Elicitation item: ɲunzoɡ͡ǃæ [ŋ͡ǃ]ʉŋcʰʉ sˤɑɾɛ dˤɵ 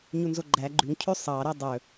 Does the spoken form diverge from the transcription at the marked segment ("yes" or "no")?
yes